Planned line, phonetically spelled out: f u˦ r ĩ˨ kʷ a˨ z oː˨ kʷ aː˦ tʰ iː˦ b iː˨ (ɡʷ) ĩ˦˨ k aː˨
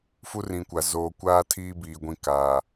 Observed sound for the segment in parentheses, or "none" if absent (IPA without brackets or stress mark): ɡʷ